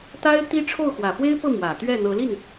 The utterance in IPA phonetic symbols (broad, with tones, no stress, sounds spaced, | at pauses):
t̪ a˥ ɪ̯ t̪ i˥ ʈ͡ʂʰ o˥˩ ʊ̯ x w ä˨˩ f w e˥ ɪ̯ p ɤ˥˩ m w ä˨˩ t̪ ɥ ɛ˥˩ n̪ ɤ˧˥ l i˥˩ n